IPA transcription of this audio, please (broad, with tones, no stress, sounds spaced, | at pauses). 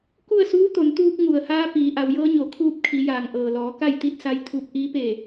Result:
k u˥˨ ə̯ s uː˧˥ t̪ o˩˧ n t̪ uː˧ k̚ ŋ u˩ ə̯ h aː˧ p iː˩˧ ʔ a˩˧ w j ɤː˧˥ ɲ o˩˧ kʰ uː˧˥ p̚ kʰ i˩˧ j aː˩ ŋ ʔ ɤː˩ l ɔː˩˧ k a˥˨ j t̪ i˥˨ t̚ s a˧ j t̪ʰ u˧ p̚ ʔ iː˧˥ p e˧˩